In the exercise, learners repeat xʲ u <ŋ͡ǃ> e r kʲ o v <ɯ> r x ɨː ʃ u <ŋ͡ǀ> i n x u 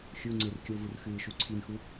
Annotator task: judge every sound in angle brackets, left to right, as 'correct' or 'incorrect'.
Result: incorrect, incorrect, incorrect

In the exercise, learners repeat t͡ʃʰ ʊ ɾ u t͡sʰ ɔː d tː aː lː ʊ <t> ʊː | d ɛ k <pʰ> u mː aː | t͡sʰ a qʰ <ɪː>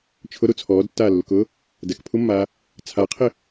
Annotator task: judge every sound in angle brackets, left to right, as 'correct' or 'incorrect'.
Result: incorrect, correct, incorrect

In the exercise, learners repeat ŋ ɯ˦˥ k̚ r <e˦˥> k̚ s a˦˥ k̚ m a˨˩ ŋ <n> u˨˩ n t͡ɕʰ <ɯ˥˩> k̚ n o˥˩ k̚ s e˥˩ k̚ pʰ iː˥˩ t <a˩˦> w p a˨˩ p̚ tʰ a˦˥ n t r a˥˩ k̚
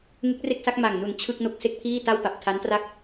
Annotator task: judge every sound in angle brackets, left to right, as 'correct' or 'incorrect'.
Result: incorrect, correct, correct, incorrect

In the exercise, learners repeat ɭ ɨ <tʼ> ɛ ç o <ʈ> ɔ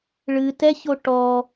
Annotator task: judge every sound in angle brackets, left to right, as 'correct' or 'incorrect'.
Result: incorrect, correct

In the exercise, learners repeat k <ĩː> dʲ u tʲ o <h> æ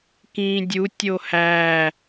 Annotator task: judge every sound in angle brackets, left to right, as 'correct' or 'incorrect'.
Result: correct, correct

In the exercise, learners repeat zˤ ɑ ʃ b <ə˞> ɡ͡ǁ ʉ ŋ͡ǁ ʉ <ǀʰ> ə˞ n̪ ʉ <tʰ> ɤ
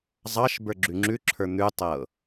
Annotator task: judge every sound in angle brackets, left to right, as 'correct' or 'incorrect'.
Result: correct, incorrect, incorrect

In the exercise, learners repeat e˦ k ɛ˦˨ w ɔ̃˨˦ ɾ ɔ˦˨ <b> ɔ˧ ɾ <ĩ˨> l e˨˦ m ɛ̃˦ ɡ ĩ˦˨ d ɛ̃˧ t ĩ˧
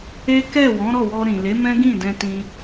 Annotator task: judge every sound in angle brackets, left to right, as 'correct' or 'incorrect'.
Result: incorrect, correct

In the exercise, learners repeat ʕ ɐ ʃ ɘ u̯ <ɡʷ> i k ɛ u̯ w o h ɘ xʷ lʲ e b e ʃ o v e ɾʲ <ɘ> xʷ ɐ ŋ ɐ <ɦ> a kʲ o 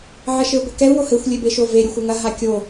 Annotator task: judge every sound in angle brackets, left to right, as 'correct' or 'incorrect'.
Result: correct, correct, correct

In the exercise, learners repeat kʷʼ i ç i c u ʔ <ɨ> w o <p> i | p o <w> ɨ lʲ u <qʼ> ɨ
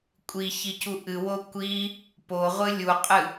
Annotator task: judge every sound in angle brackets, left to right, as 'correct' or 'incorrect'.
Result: correct, incorrect, incorrect, correct

